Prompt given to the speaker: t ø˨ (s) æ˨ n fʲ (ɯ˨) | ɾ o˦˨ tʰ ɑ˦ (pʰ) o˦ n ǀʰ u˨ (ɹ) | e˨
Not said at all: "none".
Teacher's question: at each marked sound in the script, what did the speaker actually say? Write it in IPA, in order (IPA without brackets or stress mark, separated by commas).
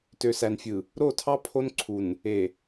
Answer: s, ɯ˨, pʰ, n